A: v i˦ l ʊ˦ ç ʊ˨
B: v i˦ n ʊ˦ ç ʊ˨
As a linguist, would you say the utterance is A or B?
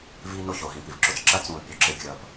B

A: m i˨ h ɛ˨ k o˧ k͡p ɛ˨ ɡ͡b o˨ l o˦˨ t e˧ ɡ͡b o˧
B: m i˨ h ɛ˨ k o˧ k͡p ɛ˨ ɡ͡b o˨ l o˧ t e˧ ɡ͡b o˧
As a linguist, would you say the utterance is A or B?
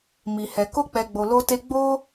B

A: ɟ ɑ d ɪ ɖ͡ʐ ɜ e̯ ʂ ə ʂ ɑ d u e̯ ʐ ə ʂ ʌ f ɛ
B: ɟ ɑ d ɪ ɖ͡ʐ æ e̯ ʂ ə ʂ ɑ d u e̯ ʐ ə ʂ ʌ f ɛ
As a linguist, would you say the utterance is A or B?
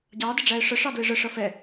B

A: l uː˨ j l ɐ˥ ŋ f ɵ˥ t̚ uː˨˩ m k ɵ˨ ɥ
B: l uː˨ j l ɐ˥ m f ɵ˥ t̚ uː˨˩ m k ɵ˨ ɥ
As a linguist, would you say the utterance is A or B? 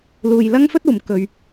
A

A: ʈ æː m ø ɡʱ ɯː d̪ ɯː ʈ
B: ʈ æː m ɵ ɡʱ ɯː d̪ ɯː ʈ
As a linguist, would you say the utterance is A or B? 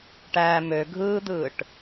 A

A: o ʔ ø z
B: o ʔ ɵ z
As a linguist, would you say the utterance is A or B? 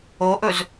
B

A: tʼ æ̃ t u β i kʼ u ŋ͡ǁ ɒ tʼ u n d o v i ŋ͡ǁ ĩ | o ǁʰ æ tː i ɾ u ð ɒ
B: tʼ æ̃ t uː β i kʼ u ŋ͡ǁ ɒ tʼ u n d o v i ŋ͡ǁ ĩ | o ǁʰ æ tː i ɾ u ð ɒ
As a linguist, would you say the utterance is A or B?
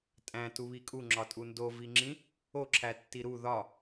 A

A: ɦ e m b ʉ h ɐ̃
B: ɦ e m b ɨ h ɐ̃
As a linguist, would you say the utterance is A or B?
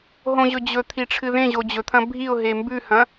A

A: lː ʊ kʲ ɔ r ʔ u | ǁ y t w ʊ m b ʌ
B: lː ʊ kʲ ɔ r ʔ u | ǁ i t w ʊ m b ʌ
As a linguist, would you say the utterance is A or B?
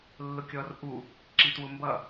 B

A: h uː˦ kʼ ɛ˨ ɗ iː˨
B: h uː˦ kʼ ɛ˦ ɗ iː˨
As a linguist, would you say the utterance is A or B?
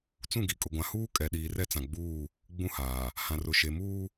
A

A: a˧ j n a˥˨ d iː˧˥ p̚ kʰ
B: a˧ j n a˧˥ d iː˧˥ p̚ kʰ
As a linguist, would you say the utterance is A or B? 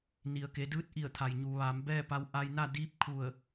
A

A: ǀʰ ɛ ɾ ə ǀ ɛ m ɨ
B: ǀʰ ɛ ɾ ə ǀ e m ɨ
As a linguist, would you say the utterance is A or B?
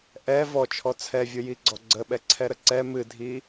A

